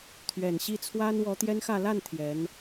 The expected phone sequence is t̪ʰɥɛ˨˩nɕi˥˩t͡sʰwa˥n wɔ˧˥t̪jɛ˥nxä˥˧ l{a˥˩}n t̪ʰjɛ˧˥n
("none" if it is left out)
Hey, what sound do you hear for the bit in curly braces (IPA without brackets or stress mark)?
a˥˩